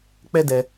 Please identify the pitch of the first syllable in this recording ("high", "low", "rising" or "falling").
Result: high